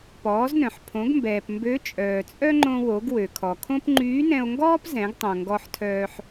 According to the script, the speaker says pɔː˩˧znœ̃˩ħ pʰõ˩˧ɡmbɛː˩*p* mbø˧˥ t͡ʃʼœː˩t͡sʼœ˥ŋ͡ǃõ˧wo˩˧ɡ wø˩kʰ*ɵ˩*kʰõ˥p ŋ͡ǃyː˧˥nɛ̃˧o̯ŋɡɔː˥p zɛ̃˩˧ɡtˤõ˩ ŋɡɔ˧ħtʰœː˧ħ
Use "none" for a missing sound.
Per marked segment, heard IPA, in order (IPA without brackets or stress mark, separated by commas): p, ɔ˩